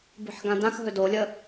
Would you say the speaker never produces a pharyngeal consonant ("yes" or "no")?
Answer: no